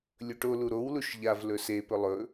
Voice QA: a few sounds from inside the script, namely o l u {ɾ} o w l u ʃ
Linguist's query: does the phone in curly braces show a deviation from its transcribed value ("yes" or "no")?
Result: no